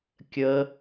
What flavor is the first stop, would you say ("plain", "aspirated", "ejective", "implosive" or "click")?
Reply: plain